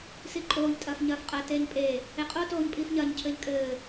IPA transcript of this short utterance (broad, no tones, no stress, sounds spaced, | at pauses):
s i ǃʼ oː ʎ tʼ ɐː f ɲ ɐː f qʼ ɐ t eː ɲ pʼ e | e qʼ o t oː ɲ pʼ iː f ɲ ɐː ɲ cʰ ɘː ʎ kʼ ɘː